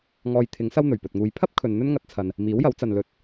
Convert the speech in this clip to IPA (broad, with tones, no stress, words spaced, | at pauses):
ŋɔː˧jt̪ʰɪ˨˥ŋsɐ˥w n̪ɵ˨˩ɥpɵ˨t̚ŋuː˧j pʰɐ˥p̚ kʰɵ˨nn̪ɵ˥nŋɐ˧t̚ t͡sʰɐ˨n | miː˨˥wjɐ˨˥wt͡sɐ˨n lɵ˧t̚